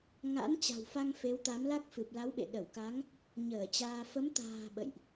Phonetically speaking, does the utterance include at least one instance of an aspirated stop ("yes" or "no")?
no